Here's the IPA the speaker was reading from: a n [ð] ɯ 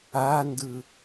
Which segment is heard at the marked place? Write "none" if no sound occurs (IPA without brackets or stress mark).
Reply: d